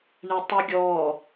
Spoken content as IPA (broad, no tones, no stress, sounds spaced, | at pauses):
ɳ ɛ tˤ ɯ ɡʲ ɔ